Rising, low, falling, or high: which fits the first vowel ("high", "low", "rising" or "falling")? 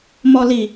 low